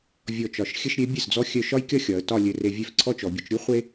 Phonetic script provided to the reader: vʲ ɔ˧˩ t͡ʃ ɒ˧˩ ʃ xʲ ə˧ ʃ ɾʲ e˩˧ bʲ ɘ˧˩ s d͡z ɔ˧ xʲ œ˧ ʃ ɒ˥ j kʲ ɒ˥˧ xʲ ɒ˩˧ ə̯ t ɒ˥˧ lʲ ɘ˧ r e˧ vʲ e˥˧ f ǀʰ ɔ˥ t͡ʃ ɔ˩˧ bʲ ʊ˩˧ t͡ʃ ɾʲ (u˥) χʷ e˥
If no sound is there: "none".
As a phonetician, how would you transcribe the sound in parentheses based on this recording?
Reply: u˥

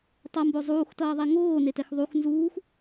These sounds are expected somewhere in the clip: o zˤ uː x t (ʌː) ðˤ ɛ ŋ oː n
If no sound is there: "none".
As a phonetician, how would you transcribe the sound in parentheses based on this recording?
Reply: ʌː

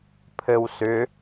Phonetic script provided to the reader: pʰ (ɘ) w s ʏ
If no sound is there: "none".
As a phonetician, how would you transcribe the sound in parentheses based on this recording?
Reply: ɘ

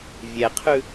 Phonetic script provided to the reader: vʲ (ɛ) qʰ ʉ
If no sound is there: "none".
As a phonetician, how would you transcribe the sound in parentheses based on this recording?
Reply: ɛ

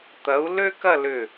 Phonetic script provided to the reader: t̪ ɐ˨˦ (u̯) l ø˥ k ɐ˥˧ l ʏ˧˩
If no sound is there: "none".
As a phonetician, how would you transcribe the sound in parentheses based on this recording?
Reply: u̯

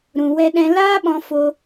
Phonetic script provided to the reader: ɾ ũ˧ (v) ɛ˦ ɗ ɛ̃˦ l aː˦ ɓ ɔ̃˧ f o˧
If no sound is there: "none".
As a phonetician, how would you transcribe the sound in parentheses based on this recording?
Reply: w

